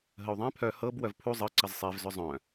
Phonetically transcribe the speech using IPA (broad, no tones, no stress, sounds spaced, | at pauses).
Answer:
ɦ ə u̯ ðˤ ɛ̃ pʰ œ h ɤ b w œ v pʰ u zˤ ɤ ǀ ə z sˤ e v z ʏ zˤ œ̃